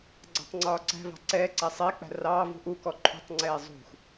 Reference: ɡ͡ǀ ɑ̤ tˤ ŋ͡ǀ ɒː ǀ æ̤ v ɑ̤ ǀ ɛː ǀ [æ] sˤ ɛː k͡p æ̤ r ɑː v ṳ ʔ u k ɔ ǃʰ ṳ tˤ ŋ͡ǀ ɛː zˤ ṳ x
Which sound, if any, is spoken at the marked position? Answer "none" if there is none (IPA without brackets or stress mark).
æ